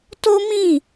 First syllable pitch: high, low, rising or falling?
high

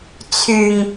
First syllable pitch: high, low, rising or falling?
low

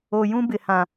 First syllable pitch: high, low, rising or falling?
low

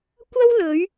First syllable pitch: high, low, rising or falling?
high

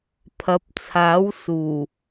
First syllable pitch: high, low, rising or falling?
rising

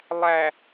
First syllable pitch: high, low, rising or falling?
low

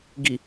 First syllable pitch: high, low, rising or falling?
low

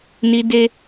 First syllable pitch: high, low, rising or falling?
high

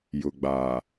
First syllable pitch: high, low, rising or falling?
low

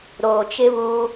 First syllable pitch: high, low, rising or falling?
low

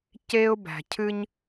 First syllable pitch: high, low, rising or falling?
high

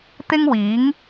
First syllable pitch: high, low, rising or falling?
high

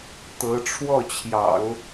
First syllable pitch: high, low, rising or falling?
rising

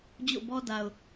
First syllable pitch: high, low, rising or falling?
falling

